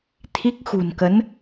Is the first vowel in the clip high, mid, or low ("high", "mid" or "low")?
high